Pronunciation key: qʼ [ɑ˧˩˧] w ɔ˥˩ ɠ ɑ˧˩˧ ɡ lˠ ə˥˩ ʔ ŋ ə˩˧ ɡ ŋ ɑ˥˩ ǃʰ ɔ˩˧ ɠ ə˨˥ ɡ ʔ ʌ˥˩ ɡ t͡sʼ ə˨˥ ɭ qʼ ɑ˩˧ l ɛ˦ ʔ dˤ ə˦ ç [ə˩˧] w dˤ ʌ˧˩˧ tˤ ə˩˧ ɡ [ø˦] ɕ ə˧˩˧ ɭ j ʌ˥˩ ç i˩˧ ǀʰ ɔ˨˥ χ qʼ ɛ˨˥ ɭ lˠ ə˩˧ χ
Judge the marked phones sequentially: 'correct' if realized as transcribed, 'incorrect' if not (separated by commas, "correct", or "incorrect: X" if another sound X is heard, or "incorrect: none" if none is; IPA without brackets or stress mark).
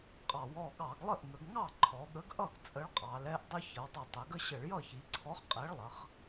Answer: correct, correct, incorrect: ə˦